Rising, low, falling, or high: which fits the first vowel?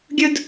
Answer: high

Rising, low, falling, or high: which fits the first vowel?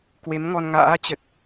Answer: rising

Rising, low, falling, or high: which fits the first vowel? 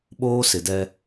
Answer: high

